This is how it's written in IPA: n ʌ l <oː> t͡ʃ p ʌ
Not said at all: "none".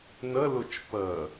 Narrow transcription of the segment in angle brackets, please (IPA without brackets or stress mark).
o